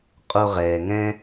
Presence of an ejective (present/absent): present